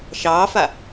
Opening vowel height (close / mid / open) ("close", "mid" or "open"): open